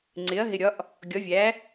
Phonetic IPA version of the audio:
ŋ͡ǀ ɪ˩˥ ɐ̯ ɦ ɪ˨ ɾʲ ɒ˩˥ ʔ | ɡʲ ɒ˩˥ vʲ æ˩˥

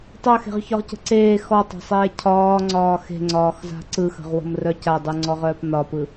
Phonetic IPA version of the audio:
tˤ œ x e̤ ʁ ç ɒ ʁ c ə̤ ǀ eː x ɔ tˤ a̤ sˤ eː cʰ ɒː ŋ͡ǀ ɒː x e̤ ŋ͡ǀ ɒː x z a̤ ǀ ɯ x ə̤ ʁ w ə̤ m r œ c a dˤ ɯ ŋ͡ǀ ɔ ʁ œː p n ɒ p ɯ

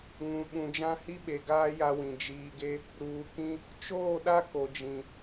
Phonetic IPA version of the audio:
ŋ ũ˨ ɓ ũ˨ d͡ʒ ã˦ h i˦ ɓ e˨ ɡ aː˦ j a˦ w ĩ˨ d͡ʒ iː˨ ɡ e˦ | ɾ uː˨ k ĩ˦ | t͡ʃ oː˦˨ ɗ a˦ k o˨ d͡ʒ ĩ˨

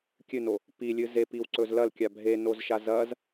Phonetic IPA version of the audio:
kʲ ɨ n o | p i lʲ ɨ z e p i w ǀ ɵ z l ɐ l kʲ a bʱ e n o z ʃ a z ɐ z

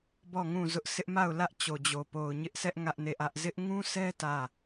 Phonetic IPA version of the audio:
b ɔ˦˨ ŋ ũ˦˨ z ʊ˦ ʔ s ɪ˦ ʔ m a˦˨ ʊ̯ l ä˦ ʔ t͡ɕ o˨ d͡ʑ o˨ p o˨ ʊ̯ ɲ ɪ˦ ʔ sʰ ɛ˦ ʔ ŋ ä˦ ʔ n e˦˨ ʔ ä˦ ʔ z ɪ˦ ʔ ŋ ũ˦ sʰ ɛ˦ t ä˦˨

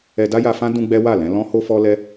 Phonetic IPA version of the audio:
ɛ˧ d a˦ j a˧ f ã˦ d ũ˦ ɡ͡b ɛ˦ w a˦˨ l ɛ̃˨˦ l ɔ̃˦ h o˦ f ɔ˦ l ɛ˦

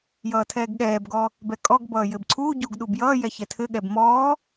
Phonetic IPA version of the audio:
j ʌː tʰ ɛː ɡ ɠ ɛː b ɡ ɔ | b ɛ kʼ ɔ ɡ b ʌː j ɘ b ǀʰ uː ɟ uː ɡ ɗ u b j ʌː j ɛ ç ɛ tʰ ɘ ɠ ɛ b m ɔː

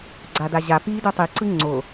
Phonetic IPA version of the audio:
ɡ͡ǀ a d a ʑ a p i d ɯ tˤ i ǀ ɯ ŋ͡ǀ o

